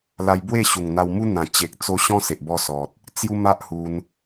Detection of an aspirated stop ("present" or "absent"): absent